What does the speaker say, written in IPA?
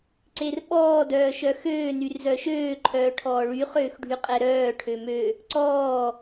ǀ e r ɓ ɔː d œː ʃ œ x øː n y r z œ ʃ øː ǃʰ œː ʈʰ ɔː ɭ y χ øː x ɖʱ y qʼ ɛ ɾ œː ʈʰ ø m ø | ǀ ɔː

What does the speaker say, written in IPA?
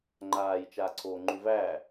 ŋ͡ǃ aː j t͡ʃ aː ǀʰ oː ŋ͡ǃ ʉ v æː

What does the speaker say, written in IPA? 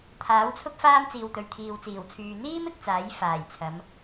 t̪ʰ aː˨˥ w t͡sʰ ʊ˥ k̚ f aː˥ m t͡s iː˨ w t̪ ɵ˨ ɥ t̪ʰ iː˨ w t͡s iː˨˩ w t͡sʰ yː˨ n̪ iː˥ m ɪ˨˥ k̚ t͡s aː˨˥ j f aː˨˩ j t͡sʰ ɐ˨˧ m

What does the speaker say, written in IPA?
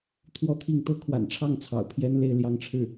t̪ʰ w ɔ˥˧ t̪ʰ i˥˩ ŋ t̪ ɤ˥ kʰ w a̰˨˩ n ʈ͡ʂʰ ɑ˥˩ ŋ t͡sʰ ɑ̰˨˩ ʊ̯ pʰ j ɛ˥ n l e˥˧ ɪ̯ l j ɑ˥˧ ŋ ʈ͡ʂʰ ɻ̩˥˩

